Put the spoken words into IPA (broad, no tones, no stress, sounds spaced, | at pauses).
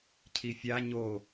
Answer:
cʰ i fʲ a ɲ o